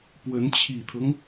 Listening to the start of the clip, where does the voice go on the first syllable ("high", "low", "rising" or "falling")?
rising